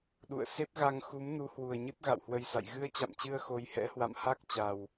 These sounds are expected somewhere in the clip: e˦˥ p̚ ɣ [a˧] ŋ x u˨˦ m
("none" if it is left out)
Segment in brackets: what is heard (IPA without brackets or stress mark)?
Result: a˧